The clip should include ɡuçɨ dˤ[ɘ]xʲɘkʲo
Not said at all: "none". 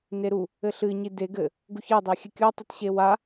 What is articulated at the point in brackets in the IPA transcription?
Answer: ɛ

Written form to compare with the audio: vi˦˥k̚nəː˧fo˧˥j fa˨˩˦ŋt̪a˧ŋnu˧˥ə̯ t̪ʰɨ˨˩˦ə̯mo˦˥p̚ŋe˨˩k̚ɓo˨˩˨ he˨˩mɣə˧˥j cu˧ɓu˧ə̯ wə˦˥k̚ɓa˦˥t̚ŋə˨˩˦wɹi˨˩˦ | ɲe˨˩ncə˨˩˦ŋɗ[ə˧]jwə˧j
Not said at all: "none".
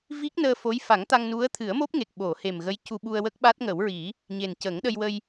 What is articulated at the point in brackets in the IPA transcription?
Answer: ə˧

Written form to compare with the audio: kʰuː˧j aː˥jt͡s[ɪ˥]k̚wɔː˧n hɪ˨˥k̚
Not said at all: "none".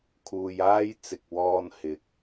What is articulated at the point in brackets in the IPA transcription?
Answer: ɪ˨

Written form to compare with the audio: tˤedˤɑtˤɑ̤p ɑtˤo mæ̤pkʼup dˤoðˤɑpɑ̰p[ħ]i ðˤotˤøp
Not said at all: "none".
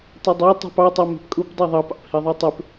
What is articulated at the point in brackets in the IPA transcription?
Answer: h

